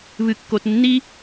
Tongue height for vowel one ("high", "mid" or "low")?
high